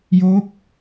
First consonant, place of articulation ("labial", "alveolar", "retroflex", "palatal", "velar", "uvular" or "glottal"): palatal